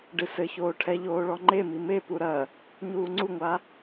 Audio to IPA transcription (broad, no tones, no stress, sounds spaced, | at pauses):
ɖ ɨ s ɘ ç oː ʈʰ ɛ ʎ oː ɭ ɔ ŋ͡ǃ e m i m e p u ɾ ɐ | ɲ uː ŋ͡ǀ u ŋʷ a